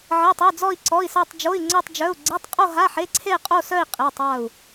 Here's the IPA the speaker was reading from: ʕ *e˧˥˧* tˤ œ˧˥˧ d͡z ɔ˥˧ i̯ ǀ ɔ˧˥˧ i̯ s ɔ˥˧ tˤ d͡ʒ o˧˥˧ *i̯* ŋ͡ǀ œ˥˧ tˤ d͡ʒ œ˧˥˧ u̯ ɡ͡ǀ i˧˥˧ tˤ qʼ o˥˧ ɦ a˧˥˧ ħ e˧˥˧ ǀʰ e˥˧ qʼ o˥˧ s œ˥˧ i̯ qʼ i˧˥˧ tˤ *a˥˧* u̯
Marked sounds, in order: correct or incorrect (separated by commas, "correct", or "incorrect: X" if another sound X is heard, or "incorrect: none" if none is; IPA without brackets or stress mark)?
correct, correct, correct